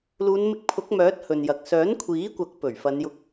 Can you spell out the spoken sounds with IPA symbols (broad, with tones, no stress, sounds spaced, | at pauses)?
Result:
l uː˨˧ n m ɪ˧ k̚ pʰ ʊ˨˥ k̚ m œː˨˥ t̚ h ɵ˨ n j ɐ˨ k̚ s œː˨˥ n kʷʰ iː˨˥ kʷ ɐ˨˥ k̚ p ɵ˨˩ ɥ f ɐ˨˧ n j ʊ˧ k̚